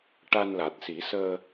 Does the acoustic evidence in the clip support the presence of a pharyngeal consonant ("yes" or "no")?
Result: no